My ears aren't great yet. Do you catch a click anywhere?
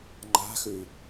yes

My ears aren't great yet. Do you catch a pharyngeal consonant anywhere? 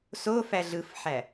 yes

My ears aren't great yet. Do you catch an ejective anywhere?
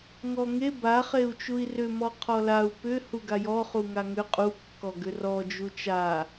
yes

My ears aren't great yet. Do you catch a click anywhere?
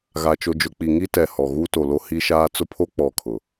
no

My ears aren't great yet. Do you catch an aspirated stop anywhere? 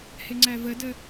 no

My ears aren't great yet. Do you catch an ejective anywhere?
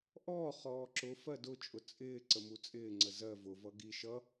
yes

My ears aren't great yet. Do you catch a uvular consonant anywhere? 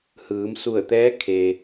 no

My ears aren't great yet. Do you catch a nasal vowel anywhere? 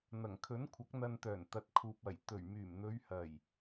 no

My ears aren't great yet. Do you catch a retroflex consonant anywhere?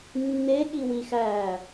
no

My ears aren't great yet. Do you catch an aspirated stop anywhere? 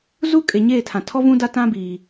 yes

